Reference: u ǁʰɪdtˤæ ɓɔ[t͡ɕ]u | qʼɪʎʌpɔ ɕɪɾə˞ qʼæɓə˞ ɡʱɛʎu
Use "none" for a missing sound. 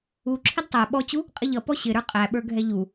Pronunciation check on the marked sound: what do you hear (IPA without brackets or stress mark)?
t͡ɕ